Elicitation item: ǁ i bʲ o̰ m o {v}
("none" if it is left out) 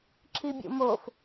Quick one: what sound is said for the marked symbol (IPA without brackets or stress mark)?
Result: f